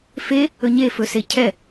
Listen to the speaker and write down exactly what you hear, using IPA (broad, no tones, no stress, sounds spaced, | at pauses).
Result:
f e | ɵ ɲ e f ɵ s e cʰ ɛ